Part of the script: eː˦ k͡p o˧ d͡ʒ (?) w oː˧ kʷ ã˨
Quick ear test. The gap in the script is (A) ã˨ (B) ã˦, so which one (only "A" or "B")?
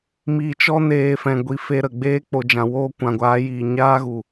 A